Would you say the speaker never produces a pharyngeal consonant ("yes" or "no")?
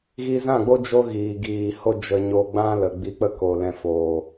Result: yes